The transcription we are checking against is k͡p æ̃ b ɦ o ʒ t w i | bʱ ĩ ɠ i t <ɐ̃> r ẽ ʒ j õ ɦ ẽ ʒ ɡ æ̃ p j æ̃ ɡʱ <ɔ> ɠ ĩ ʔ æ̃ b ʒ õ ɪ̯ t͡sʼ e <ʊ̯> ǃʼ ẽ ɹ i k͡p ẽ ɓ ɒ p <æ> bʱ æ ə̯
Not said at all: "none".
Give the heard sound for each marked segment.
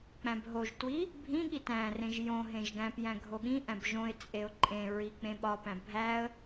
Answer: æ̃, o, ʊ̯, æ̃

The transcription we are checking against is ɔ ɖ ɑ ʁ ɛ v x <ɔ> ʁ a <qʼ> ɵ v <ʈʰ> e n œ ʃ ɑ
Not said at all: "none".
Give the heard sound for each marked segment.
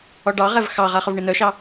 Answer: ɑ, χ, ɳ

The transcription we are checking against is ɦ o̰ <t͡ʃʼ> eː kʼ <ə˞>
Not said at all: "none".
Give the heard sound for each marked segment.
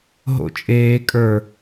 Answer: t͡ʃʼ, ə˞

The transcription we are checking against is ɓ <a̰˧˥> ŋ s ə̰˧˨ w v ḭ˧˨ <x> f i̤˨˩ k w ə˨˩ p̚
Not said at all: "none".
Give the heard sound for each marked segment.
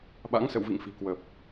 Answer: a̰˧˥, ŋ

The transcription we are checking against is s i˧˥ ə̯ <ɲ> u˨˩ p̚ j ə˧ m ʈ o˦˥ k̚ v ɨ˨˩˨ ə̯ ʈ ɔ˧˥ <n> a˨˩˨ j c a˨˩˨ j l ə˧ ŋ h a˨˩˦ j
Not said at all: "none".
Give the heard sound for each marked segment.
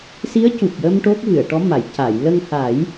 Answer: c, m

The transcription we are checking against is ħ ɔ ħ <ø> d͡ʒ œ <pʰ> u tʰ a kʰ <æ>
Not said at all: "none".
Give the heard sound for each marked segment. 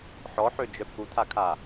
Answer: ø, pʰ, a

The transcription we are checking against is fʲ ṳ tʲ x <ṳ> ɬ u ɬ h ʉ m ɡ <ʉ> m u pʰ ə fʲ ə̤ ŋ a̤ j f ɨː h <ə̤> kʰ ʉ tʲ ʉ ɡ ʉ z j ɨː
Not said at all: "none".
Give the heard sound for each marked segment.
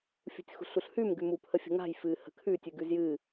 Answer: ṳ, ʉ, ə̤

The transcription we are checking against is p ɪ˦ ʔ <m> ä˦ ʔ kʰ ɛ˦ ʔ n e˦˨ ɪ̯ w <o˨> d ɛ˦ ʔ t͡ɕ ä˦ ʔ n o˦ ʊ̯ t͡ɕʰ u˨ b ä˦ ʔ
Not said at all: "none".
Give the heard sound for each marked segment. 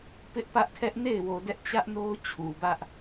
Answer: p, o˨

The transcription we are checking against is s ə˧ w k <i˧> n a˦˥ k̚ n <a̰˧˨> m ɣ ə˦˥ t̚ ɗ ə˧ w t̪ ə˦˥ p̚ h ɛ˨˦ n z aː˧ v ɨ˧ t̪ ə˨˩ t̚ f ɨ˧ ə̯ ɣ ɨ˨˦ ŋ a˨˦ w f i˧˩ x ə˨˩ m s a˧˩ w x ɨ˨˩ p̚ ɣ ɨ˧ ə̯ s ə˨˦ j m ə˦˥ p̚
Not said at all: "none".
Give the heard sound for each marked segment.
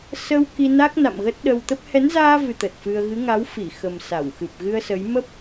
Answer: i˧, a̰˧˨

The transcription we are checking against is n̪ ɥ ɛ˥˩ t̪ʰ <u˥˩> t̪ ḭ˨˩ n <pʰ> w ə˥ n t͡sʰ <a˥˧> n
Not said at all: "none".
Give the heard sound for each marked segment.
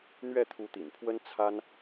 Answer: u˧˥, pʰ, a˥

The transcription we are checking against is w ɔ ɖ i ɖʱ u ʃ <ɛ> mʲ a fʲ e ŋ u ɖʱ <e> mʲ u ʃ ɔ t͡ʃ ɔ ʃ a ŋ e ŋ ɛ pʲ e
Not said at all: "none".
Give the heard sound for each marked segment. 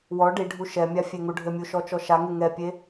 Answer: ɛ, ɘ

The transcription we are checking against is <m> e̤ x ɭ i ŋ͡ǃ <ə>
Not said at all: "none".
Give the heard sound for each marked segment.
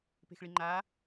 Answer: p, a

